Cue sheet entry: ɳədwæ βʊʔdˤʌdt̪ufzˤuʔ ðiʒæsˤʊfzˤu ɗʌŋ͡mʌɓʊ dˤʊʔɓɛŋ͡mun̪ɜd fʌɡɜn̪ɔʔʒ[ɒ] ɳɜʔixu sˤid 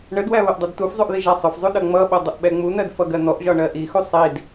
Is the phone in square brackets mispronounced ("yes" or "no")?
no